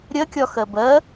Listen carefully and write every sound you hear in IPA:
ɾʲɜkʲɒ xɜbɜ

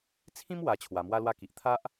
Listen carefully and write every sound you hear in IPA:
t͡sʰĩ˦mwa˨˩ t͡ɕʰwa˨˩mwa˧lwa˧ki˨ʔ t̪ʰa˦ʔ

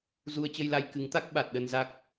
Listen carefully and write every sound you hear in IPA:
zu˧ə̯t͡ɕə˧jla˧j kɨ˨˦ŋt̪a˦˥k̚ ɓa˨˩t̚ɗə˧nza˦˥k̚

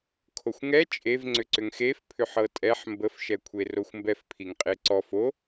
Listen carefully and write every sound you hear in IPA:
kʰoxʷŋɛ t͡ʃʼev ŋ͡ǀʏǀʏŋxefpʰʏ ħɤtʼɛħ mbəfʃɛkʷʰe roxʷmbɛfpʰiŋqʼe ǀɔf o

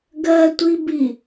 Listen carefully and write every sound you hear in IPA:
ɡɜtʷibi

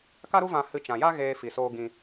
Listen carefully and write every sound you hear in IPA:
ka˦ɾu˦vã˧ hɨ˧t͡ʃã˨ja˦ɣeː˧ fi˨soː˧ ɡĩ˧

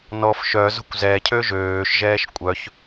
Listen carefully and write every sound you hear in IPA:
nɔf ʃœzo̤kʷ zɛcʰø ʒøːʃʒɛːʃ kʷʼœç

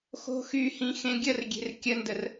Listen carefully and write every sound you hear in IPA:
xo̤xyhĩ xẽɡʲərɡʲe̤r kʲəndər

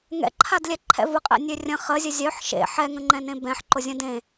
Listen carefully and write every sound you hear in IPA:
ŋɛ̰ǃʰad lʲɛǃʰɛ̰vʊqʼḛ nʲørʲə̃ χəzʲə zʲœħ ʃḛ ħɛŋə̃ŋ͡ǃɛ̃nẽ bɛ̃ħǃʊzʲə̃ dẽ

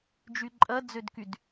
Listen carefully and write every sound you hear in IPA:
d͡ʒyǃʼɐ d͡zødkyd

